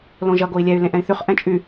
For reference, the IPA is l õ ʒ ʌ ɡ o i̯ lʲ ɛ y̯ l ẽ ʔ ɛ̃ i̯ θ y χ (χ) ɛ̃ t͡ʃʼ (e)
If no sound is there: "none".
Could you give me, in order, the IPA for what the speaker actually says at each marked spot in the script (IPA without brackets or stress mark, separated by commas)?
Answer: ʔ, y